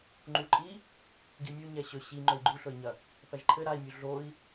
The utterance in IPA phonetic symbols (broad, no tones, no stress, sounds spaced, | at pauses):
ŋ͡ǃ u ǃʼ i | ɡ i mʲ ə u̯ ɲ ɛ ɕ ɵ ɕ i ŋ͡ǃ ɵ i̯ ɡ͡ǃ u ɬ ɵ i̯ ɲ ɐ | θ ɐ ʒ ǃʰ ɘ ɾ a i̯ mʲ u ɮ o i̯